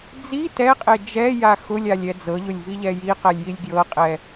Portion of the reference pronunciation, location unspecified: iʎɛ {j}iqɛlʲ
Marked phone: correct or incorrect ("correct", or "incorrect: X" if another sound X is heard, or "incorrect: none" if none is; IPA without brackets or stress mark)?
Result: correct